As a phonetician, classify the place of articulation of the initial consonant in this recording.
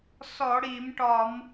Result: alveolar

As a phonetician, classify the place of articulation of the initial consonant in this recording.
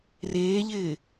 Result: alveolar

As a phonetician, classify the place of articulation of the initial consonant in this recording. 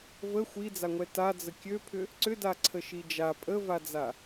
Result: labial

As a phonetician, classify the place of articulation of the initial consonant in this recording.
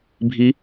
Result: labial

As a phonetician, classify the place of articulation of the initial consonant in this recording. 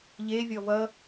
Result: palatal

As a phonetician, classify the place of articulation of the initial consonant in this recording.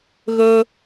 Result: velar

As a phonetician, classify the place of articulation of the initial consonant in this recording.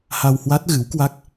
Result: glottal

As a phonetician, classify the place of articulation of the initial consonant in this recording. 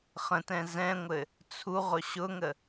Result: uvular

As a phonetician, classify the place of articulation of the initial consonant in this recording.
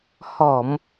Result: glottal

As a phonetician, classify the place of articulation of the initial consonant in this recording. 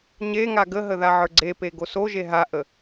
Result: palatal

